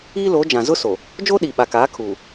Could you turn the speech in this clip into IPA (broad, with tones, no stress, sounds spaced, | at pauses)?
iː˦ l oː˨˦ d͡ʒ ã˨ z ʊ˦ s o˨ | d͡ʒ oː˦ ɗ iː˨ ɓ a˨ k aː˨˦ kʰ uː˨